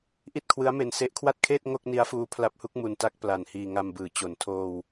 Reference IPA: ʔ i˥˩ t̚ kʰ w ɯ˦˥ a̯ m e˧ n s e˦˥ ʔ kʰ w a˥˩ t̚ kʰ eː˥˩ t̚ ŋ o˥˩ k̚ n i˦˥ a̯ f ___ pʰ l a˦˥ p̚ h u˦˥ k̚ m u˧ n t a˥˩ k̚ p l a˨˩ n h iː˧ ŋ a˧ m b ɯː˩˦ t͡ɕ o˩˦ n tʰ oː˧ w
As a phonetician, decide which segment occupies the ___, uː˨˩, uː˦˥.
uː˦˥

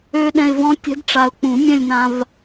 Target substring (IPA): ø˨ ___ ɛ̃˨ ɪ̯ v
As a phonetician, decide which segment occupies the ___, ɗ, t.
ɗ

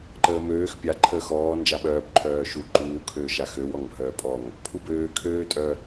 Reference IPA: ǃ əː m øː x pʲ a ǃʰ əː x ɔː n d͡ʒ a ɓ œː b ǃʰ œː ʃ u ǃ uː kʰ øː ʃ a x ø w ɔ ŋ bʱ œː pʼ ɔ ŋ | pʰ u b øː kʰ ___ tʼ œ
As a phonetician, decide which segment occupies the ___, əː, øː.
øː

